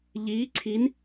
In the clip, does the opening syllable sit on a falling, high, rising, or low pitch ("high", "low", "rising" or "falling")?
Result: rising